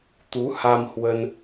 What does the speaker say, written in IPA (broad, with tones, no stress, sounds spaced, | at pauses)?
t̪ u˨˦ h a˧ m h w ə˧ n